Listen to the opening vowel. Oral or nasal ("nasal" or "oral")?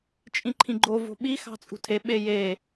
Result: nasal